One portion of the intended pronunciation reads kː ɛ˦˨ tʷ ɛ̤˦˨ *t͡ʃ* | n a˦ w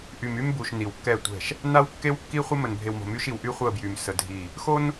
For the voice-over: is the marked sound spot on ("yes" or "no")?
no